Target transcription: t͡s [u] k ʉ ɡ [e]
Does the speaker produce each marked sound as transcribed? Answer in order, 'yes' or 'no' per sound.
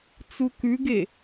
yes, yes

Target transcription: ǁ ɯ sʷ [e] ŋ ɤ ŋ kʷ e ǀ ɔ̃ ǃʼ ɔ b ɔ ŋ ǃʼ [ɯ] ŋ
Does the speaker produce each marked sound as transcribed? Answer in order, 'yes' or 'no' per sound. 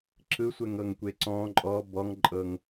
no, no

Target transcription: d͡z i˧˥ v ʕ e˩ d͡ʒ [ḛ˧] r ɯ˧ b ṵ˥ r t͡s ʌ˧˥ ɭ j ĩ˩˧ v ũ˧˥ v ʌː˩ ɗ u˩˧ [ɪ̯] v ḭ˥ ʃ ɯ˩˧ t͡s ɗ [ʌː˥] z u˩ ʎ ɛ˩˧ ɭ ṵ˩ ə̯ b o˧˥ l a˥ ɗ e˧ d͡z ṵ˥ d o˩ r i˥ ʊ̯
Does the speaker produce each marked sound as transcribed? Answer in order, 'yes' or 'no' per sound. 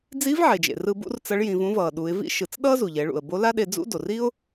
no, yes, yes

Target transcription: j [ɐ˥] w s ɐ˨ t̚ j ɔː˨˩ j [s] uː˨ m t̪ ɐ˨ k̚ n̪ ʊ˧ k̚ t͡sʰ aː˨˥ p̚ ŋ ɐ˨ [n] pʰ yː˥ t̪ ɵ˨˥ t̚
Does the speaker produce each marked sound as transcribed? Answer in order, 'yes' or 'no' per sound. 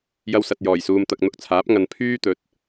no, yes, yes

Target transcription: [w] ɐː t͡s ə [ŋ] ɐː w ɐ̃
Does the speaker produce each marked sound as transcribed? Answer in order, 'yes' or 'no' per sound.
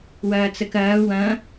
yes, no

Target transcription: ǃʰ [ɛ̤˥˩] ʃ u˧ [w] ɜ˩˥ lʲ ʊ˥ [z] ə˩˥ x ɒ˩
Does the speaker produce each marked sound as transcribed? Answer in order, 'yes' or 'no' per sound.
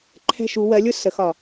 yes, yes, no

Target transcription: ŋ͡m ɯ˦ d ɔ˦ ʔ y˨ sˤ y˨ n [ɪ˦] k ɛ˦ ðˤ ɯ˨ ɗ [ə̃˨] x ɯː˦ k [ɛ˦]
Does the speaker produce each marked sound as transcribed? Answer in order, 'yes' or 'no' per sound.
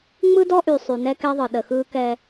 no, no, yes

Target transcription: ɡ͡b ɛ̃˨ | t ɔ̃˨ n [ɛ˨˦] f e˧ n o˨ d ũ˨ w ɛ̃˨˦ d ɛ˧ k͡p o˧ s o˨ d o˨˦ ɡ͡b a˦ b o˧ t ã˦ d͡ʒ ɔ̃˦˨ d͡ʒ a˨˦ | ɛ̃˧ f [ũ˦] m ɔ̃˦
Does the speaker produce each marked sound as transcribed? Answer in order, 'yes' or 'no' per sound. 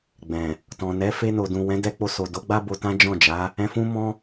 yes, yes

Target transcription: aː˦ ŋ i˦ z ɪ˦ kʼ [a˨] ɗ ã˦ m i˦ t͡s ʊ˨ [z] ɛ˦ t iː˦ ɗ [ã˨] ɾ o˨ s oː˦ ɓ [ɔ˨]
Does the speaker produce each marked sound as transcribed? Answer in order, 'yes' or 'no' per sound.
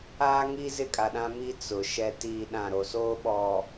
yes, no, no, yes

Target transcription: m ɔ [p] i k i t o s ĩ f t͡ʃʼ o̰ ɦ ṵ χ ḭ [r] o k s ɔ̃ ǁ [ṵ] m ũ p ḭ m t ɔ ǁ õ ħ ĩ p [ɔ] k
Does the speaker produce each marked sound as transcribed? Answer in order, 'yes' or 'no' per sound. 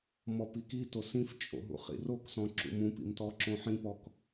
yes, yes, yes, yes

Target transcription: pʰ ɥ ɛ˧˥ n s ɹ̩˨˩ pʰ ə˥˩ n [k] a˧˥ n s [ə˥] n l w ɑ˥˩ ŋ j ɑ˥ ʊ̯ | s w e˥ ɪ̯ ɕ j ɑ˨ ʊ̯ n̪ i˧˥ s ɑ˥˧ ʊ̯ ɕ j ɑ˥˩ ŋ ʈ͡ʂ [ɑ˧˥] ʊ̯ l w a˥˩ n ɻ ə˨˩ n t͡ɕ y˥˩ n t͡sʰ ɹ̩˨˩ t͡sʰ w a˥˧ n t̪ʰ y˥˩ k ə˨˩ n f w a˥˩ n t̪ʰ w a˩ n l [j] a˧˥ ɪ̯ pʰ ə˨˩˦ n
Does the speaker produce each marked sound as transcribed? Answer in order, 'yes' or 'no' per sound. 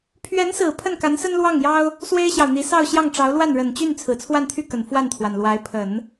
yes, yes, yes, no

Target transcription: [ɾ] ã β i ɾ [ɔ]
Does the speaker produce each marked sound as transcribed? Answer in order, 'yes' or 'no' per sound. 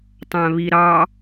no, no

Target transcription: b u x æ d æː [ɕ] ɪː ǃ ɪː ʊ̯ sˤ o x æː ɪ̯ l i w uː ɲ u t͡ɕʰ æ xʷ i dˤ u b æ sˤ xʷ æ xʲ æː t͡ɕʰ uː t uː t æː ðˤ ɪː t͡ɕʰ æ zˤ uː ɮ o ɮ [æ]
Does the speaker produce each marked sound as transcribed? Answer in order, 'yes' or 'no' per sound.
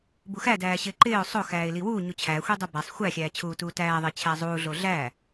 yes, yes

